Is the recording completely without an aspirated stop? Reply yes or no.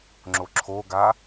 no